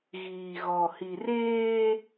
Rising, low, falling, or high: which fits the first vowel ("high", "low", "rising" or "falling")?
low